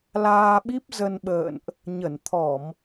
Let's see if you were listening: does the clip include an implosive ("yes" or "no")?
yes